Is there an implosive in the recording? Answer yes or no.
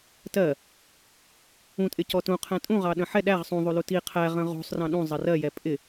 yes